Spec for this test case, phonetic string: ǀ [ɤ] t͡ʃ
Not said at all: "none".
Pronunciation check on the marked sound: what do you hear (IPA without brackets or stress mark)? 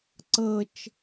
ɤ